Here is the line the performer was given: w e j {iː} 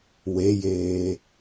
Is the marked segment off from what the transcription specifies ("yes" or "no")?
yes